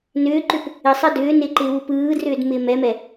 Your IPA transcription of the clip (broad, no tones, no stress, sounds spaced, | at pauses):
n ʏː ǃ ʏ p | ɪ sˤ ɜ d ʏː n ɪː ǃ ɪː w u p ɯː d r ʏː d m ɪː m ɛ m ɛ